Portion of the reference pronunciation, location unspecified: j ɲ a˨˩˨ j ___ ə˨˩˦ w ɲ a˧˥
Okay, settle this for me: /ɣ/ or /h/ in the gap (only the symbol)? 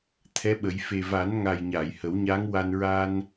h